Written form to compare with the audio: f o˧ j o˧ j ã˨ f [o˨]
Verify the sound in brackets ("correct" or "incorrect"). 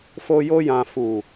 incorrect